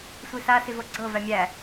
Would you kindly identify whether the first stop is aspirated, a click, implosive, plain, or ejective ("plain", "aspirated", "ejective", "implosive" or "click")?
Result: click